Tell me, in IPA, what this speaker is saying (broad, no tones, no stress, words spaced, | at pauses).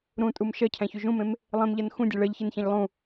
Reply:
ɾũtʼum ʃɜcʰæ̃çu ʒũmẽm | lˠẽmʎɜn xũdʲe ɭɜʎçençẽʎ lˠũ